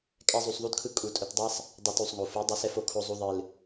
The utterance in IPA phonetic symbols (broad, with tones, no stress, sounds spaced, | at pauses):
kʼ ɛ˦ zˤ u˧ sˤ ðˤ u˦ d kʰ ɯ˦ kʼ u˧ tʼ ʊ˧ t dˤ ɛ˦ sˤ | dˤ o˧ t u˨ sˤ ŋ o˨ f ɯ˨˦ dˤ ɨ˨˦ s ɛ˧ f o˧ kʰ o˧ zˤ u˧ ðˤ ɨ˨ l